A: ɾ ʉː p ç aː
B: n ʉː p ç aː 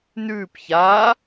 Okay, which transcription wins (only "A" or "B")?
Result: B